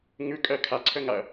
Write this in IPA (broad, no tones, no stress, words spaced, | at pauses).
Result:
ŋʉkʼɜ kʰaǀʰəŋaɐ̯